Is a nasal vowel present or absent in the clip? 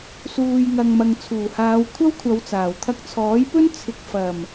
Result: absent